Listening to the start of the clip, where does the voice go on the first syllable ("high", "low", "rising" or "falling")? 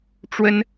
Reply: high